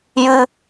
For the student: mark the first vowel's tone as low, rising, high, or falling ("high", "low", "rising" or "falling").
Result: high